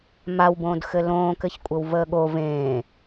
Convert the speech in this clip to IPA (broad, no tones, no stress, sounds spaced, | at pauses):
m a w b õː d x ɘ l õː k ɘ ç kʷʼ ɘ w v əː ɠ o v ẽː